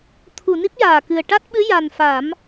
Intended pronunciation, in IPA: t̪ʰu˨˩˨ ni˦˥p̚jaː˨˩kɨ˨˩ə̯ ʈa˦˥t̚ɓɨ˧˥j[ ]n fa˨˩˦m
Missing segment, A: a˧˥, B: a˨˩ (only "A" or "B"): B